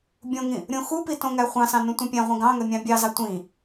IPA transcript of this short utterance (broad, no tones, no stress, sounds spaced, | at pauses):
bʲ õ ŋ ĩ | ɾʲ õ x u p i t õ ŋ æ χʷ ɑ̃ s ɑ̃ n ũ tʷ ĩ pʲ æ̃ ʁʷ ĩ ɡ ɑ̃ ŋ ø mʲ ɑ̃ bʲ ɑ z ɑ tʷ ĩ